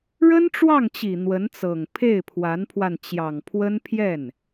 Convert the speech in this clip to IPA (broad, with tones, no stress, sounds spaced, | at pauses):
ɻ ə˥ n ʈ͡ʂ w ɑ˥˩ ŋ t͡ɕ i˨˩ n̪ w ə˧˥ n t͡s ɤ˨˩ ŋ pʰ e˥˩ ɪ̯ pʰ w a˧˥ n pʰ w a˧ n t͡ɕ j ɑ˨˩ ŋ pʰ w ə˥ n pʰ j ɛ˥˩ n